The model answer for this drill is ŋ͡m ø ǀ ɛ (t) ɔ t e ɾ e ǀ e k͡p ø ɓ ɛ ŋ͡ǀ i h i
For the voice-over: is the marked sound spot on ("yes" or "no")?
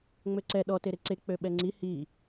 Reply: no